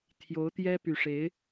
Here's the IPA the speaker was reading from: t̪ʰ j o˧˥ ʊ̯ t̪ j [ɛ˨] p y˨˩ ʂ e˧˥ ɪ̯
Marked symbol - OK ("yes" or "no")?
no